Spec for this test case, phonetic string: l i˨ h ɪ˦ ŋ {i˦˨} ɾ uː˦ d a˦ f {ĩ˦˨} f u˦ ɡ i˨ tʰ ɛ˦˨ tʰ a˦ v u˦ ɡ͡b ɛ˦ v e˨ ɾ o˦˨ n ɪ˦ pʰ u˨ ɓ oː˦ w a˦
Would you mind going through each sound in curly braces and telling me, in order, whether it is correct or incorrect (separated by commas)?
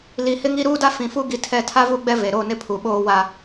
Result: incorrect, incorrect